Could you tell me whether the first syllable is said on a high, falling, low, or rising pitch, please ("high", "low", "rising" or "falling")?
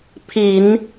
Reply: low